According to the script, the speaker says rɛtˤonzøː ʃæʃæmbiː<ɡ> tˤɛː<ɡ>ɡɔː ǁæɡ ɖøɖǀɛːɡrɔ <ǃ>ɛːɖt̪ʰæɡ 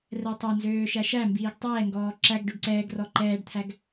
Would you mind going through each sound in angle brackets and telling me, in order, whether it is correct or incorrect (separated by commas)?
correct, incorrect, correct